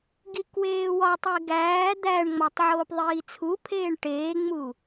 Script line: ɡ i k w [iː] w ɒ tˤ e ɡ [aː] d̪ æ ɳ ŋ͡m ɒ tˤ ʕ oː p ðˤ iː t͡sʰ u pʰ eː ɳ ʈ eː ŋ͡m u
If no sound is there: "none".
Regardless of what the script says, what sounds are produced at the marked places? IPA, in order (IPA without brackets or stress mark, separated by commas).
eː, æː